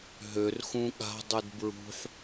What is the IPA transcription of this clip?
ɦ ø r x ũ ɠ a̤ dˤ y d b ɹ ṳ ħ

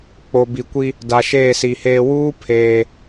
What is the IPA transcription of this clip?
k͡p o˨ b i˨ kʷ i˦ | d a˨ ʃ eː˦˨ s i˨ h eː˦ w uː˦ pʰ eː˦

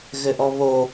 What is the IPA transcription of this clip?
ɣ ɘ ʔ ɔ β o

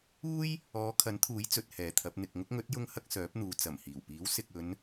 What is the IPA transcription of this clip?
uː˥ j | ɔː˨˧ kʰ ɐ˨˥ n t̪ʰ uː˨˥ j t͡s ɵ˨˥ t̚ h ɛː˨ t̪ʰ ɐ˨˥ p̚ n̪ ɪ˨ k̚ ŋ ʊ˥ k̚ ŋ ɵ˨˥ t̚ j ʊ˧ ŋ h ɐ˧ k̚ s œː˨˥ p̚ n̪ uː˨ t͡s ɐ˨˩ m h iː˨˩ w p iː˨˥ w s ɪ˨ k̚ ɵ˨˧ n

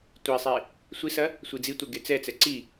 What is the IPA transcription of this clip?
tʷ i sˤ e | sʷ i s ɐ | sʷ i d͡z i tʷ ɛ ɡ e t͡s ɛ t͡s ɛ ǀ i

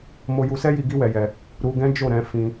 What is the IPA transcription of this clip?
m o˧ j u˧ s ɛ˦ j i˧ ɡ i˦ w ɛ˧ j ɛ˧ | ɾ u˧ ɡ ɛ̃˦ d͡ʒ o˦˨ ɾ ɛ̃˨˦ f ĩ˧

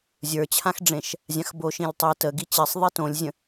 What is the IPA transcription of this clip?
zʲ ə˞ t͡ɕʰ ã x ɖ͡ʐ ẽ ʃ | zʲ ã x b o ʃ ĩ lʲ tˤ i t ə ɡ i t͡ɕ i sˤ ðˤ i t õ lʲ zʲ ə̃

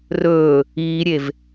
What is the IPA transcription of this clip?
r ɵː | iː ɾʲ e v

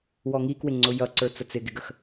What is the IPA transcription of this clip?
w ɔ ŋ i k w ɪ ŋ͡ǀ ʊ j ʌ ǀ ə˞ t͡s ə t͡s ɪ ɡ ɪ ɡ ə x

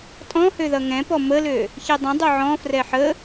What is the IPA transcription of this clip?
tʼ ɔ̃ h ø ð ʌ ŋ ɛ̃ p ɔ m ə l ø | ç i dˤ ə̃ dˤ ø ʕ ɔ̃ f r ɛ ħ ə

